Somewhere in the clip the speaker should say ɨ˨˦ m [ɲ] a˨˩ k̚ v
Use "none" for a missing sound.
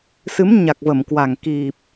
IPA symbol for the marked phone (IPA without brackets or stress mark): ɲ